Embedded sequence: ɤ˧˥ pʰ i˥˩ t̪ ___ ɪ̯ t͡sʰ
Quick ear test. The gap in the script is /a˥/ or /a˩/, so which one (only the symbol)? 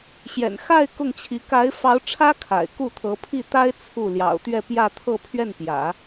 a˥